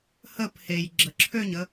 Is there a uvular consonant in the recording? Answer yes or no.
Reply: no